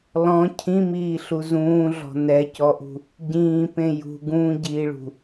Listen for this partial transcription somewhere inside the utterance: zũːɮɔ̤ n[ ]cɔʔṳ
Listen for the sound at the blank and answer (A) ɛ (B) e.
A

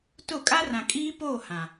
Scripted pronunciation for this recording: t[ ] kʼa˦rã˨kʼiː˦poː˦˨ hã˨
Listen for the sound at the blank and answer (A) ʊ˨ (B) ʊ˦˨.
B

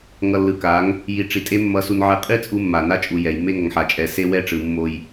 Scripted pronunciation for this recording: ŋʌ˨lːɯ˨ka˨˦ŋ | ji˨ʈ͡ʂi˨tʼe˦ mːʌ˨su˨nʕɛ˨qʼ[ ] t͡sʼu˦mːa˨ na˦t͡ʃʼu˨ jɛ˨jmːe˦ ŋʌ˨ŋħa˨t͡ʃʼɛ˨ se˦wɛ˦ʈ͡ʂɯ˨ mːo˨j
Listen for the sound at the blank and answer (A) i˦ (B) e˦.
A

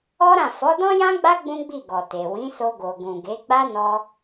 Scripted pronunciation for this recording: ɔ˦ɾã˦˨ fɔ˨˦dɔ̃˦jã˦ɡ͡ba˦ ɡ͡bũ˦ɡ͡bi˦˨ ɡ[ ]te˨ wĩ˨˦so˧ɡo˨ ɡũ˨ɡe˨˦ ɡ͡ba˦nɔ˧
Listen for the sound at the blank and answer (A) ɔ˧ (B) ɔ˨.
B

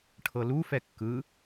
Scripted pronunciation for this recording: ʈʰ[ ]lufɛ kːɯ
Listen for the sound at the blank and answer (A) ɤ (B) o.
A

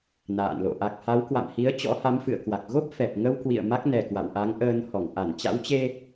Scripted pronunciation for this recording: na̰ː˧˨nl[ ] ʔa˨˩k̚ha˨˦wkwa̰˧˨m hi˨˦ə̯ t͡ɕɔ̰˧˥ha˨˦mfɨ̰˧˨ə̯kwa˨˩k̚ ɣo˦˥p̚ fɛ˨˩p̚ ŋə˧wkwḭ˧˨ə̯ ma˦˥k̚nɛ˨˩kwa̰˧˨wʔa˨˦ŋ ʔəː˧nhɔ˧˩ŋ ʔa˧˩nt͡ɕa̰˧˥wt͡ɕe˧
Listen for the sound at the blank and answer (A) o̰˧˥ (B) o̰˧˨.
B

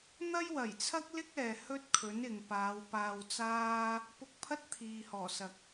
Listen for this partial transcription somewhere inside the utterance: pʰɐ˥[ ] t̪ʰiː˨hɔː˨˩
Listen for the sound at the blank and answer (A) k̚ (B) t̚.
B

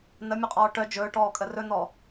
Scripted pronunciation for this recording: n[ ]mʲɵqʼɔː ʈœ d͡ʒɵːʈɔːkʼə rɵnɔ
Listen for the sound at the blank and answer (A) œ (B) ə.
B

